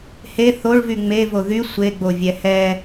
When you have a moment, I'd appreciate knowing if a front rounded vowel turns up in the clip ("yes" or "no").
yes